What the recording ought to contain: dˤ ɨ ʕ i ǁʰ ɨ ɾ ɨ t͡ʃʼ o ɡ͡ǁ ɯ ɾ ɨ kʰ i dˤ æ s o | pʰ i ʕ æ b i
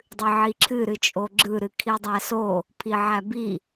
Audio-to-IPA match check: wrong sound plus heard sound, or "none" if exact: none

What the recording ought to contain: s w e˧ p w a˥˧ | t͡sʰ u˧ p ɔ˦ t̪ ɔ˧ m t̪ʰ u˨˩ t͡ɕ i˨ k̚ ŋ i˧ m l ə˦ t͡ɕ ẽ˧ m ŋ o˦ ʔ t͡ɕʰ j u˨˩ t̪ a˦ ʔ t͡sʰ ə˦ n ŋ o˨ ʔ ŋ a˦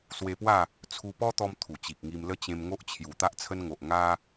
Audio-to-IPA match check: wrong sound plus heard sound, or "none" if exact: none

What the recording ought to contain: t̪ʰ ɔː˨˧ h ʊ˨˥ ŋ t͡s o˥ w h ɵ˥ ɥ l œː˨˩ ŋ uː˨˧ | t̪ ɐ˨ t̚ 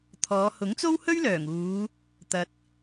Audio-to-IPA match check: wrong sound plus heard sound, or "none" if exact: none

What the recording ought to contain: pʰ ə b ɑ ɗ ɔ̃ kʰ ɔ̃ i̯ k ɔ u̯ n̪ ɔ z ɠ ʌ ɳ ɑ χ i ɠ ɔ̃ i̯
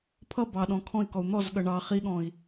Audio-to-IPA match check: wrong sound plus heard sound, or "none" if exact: ə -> ʌ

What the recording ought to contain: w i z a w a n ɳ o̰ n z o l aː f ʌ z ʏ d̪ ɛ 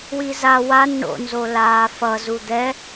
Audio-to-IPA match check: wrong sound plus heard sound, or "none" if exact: ʏ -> u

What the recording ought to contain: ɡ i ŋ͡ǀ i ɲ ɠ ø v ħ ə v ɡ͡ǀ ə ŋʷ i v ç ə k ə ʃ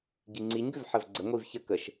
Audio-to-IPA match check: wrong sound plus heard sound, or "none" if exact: ɠ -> ɡ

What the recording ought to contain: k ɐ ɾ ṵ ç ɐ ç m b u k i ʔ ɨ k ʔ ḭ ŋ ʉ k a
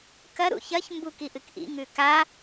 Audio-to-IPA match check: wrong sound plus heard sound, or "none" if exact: none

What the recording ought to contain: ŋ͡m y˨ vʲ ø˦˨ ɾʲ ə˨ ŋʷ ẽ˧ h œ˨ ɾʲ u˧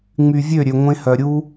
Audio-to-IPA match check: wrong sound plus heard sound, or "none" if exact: ə˨ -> ø˨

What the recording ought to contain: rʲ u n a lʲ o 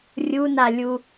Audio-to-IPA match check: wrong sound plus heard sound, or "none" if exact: o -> u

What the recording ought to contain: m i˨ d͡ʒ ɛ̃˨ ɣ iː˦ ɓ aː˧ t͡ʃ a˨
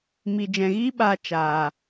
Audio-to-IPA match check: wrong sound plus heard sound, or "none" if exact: a˨ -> aː˨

